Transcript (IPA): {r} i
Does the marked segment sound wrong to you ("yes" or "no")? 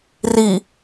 no